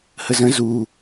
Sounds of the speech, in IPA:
h ə z ə̃ z u

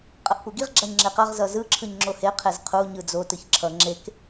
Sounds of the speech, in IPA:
qʼ ʌ ʔ p u ɡ i ʁ ɡ͡ǁ a ɲ ŋ͡ǁ e q ʌ ʁ z ʌ z ɯ ǁʰ ɯ ɲ ŋ͡ǁ o h e qʰ e z qʰ u ɲ ɯ d͡z o t ɯ ç ǁʰ ʌ ŋ͡ǁ e k

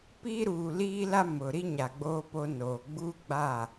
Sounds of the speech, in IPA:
p iː˦ ɾ uː˨ l iː˦ l a˦ m ʊ˨ ɾ i˦ ɲ a˨ ɡ͡b oː˦ p o˦ n oː˨ ɡ͡b uː˦ ɡ͡b a˦˨

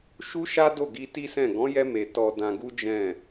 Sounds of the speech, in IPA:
ʃ u˦ ʃ a˦ d o˦˨ ɡ i˧ t i˦ s ɛ̃˦˨ ɡ ɔ̃˨˦ j ɛ˧ m e˨ t ɔ˧ d ã˧ ɡ u˦ d͡ʒ ɛ̃˦˨

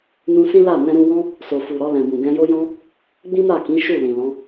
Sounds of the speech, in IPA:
n ũ˧ s ĩ˦ l a˦˨ n ɛ̃˧ ɾ ũ˧ w ɔ̃˦ | s o˨ f u˨ ɾ ɔ˧ l ɛ̃˨ b ũ˨ ɡ ɛ̃˧ j o˦ j ɔ̃˦ | ɡ͡b ĩ˦ m a˦˨ k ĩ˨˦ ʃ u˦˨ l ĩ˨ l ɔ̃˨˦

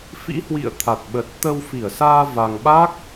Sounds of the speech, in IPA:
f ḭ˧˥ h w ḭ˧˨ ə̯ t̪ʰ a˨˩ t̚ ɓ ə˨˩ t̚ t̪ ə˧ w f i˧˩ ə̯ s aː˧ v a˧ ŋ ɓ a˦˥ k̚

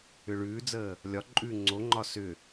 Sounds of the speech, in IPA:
ʏ ɭ ʉː d͡z əː | lʲ ɒ ǃʼ ʉː ŋ͡ǀ o ŋ͡ǃ ɒ s ʏ

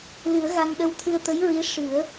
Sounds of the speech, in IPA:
l ɨ˨˩˦ ə̯ ɣ a˧ ŋ ɗ ə˧ w t̪ʰ ɨ˧ ə̯ t̪ ə˧˥ j ɹ i˧˥ ʂ ɨ˨˩˦ ə̯

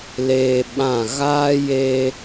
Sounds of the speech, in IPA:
l eː˧ ɓ ã˦˨ ɣ aː˦ j eː˧

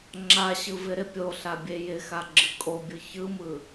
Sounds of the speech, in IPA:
ŋ͡ǁ a ɕ ɯ v ɪ ɾ ɪ pʲ o ɬ a bʲ e j ɪ x a ɡ͡ǁ ɯ kʼ o bʲ ɯ ç ɯ m ɯ

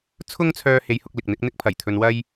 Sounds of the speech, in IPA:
t͡sʰ ʊ˥ ŋ t͡sʰ œː˧ h e˨˧ j h ʊ˧ k̚ l ɪ˨ k̚ n̪ ɪ˨˥ k̚ n̪ ɪ˥ k̚ pʰ ɐ˨˩ j t̪ʰ ɵ˧ n w ɐ˥ j

